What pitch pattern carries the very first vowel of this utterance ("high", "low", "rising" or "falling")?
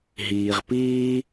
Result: low